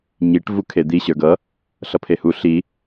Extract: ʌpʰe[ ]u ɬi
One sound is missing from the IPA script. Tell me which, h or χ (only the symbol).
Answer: h